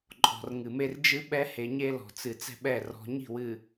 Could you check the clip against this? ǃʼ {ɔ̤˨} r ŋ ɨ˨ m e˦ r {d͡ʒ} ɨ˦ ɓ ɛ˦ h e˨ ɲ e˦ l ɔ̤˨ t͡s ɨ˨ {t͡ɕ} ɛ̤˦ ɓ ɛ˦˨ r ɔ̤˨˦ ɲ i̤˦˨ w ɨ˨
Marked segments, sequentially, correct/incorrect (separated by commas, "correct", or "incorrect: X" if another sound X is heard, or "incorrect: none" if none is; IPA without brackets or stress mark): correct, correct, incorrect: t͡s